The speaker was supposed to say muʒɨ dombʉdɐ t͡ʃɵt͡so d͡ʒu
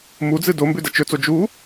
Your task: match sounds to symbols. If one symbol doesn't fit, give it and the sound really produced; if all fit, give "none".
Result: ʒ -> d͡z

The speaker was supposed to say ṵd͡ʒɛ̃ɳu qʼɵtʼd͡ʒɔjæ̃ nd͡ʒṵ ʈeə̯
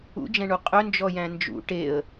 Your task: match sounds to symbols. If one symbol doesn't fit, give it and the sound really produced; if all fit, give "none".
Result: tʼ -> n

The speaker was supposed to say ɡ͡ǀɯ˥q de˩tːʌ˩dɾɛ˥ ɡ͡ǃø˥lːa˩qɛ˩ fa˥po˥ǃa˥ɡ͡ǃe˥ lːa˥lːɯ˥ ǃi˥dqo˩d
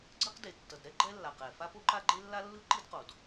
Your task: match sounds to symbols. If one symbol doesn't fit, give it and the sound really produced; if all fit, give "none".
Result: ø˥ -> ɛ˥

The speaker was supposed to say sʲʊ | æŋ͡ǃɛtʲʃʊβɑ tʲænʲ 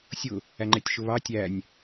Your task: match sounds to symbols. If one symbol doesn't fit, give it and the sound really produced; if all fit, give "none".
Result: none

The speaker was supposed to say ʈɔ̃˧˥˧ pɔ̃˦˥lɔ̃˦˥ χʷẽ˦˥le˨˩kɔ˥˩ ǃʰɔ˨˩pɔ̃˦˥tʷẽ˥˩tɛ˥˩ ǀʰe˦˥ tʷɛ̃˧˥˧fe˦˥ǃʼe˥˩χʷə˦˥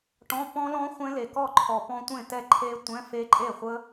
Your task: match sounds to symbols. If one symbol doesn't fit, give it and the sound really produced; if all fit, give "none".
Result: ǀʰ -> ǃʰ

